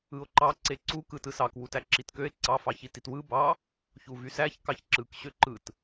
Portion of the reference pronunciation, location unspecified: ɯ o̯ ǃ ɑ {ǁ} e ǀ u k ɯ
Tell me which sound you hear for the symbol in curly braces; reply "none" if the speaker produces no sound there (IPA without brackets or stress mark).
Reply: ǀ